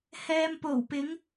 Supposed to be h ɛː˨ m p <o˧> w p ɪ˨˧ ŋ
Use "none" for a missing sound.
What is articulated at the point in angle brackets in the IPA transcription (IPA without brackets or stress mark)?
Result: o˨˩